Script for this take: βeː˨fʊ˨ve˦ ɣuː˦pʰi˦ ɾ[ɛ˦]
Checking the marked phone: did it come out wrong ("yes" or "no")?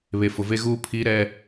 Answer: no